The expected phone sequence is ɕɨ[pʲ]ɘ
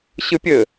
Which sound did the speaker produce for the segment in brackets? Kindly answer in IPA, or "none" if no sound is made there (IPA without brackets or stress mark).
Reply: pʲ